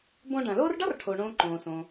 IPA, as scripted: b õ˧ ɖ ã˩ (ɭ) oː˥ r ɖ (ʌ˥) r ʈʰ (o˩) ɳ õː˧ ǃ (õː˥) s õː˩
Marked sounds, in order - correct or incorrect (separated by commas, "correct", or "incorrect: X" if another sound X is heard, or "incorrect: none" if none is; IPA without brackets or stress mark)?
incorrect: l, correct, correct, incorrect: õː˩